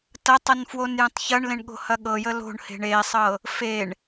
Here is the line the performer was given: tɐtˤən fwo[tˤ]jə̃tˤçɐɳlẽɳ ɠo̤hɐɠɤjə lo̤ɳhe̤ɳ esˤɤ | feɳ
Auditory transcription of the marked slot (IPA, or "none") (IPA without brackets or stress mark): n